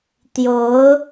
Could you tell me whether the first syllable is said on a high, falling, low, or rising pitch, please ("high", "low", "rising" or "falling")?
rising